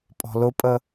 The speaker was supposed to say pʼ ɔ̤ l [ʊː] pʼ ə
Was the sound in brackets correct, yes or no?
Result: no